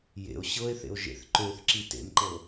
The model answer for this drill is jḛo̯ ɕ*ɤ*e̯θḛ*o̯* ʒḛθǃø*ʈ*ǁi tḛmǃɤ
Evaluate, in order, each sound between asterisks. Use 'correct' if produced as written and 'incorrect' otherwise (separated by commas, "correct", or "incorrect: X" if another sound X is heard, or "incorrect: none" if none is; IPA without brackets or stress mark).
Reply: correct, correct, incorrect: θ